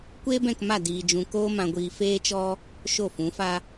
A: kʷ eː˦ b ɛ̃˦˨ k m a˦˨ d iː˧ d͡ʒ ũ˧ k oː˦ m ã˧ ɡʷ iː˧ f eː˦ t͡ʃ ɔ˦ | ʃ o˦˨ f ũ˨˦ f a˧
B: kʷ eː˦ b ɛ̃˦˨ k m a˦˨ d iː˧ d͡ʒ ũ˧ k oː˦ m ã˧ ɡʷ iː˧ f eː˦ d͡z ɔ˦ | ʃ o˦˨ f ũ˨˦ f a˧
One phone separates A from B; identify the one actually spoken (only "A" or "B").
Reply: A